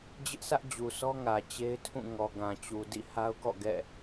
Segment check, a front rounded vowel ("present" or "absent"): absent